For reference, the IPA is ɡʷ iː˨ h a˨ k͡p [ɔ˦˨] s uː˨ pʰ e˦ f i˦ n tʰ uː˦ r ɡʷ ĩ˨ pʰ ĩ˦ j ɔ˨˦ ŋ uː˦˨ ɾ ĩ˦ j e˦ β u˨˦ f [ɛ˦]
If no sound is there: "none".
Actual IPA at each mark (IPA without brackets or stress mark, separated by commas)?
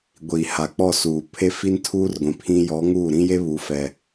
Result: ɔ˦˨, ɛ˦